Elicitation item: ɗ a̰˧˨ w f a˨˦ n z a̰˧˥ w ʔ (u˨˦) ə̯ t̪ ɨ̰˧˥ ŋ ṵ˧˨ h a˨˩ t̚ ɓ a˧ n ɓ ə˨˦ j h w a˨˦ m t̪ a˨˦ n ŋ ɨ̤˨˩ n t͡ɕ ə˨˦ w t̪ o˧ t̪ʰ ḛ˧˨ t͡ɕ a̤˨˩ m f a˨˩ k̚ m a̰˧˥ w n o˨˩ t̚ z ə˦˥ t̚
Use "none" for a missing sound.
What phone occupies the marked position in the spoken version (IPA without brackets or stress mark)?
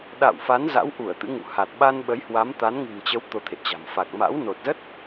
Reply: u˧˩